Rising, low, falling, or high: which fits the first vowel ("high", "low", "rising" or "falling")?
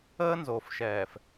high